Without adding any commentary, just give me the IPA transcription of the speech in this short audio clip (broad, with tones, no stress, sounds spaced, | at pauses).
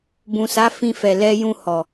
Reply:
b ũ˨ s a˨˦ f ĩ˧ f ɛ˨ l ɛ˧ j ũ˧ h ɔ˨